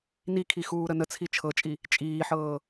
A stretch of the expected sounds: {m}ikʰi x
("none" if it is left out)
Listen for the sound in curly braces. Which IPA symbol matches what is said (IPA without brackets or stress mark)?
n